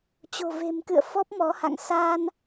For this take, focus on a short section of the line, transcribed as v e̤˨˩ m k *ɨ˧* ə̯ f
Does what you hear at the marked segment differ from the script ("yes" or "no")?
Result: yes